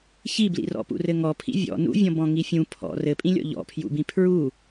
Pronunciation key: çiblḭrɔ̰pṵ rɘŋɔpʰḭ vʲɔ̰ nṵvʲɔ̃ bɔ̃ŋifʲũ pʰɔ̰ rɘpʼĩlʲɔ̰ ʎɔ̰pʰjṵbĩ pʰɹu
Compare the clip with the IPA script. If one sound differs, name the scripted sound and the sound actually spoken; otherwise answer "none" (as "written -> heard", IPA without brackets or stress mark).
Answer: none